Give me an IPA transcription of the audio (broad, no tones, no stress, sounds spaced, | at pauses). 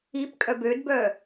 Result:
i p kʼ œ b ø d b œ